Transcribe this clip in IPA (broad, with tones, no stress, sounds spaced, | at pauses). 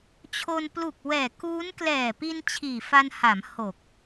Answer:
t͡ɕʰ o˧ n p l u˨˩ k̚ w ɛː˨˩ k uː˦˥ n k l ɛː˨˩ p i˧ n t͡ɕʰ iː˨˩ f a˧ n h a˩˦ m h o˨˩ k̚